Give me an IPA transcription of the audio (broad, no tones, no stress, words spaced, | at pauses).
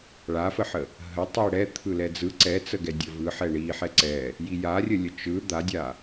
ɭafəħə | ɦətˤi ɽɛ t̪ʰɯlɛd͡zɯ ǀɛt͡səɡɛ dʲəvɯ ħɛɳi ħɛǀɛ | jijarʲəlʲə t͡ʃɯ d̪adʲa